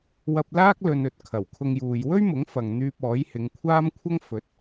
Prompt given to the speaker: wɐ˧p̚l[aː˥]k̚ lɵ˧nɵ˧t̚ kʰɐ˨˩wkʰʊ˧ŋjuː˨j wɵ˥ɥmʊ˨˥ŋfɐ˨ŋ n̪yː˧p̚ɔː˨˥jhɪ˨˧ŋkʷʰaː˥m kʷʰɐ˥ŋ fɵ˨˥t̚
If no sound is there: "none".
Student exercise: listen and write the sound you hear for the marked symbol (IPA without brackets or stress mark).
aː˥